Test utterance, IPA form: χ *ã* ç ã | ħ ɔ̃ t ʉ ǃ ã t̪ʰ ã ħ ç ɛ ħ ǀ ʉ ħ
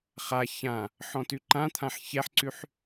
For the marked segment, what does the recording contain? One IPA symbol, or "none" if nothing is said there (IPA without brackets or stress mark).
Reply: a